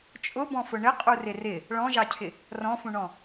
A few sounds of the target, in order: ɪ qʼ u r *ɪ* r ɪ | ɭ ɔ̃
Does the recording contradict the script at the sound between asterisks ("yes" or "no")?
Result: no